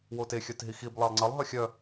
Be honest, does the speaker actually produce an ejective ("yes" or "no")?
no